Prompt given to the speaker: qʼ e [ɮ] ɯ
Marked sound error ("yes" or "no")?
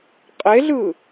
no